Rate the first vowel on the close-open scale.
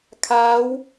open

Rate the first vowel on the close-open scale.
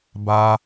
open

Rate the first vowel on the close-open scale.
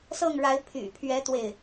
mid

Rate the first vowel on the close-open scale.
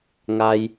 open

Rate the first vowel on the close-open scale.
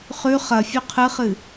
close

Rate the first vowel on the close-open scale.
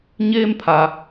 mid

